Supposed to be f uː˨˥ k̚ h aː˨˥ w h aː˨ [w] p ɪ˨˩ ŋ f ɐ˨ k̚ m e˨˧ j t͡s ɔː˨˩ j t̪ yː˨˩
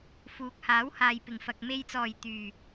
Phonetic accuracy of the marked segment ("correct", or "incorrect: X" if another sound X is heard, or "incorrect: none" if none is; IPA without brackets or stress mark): incorrect: j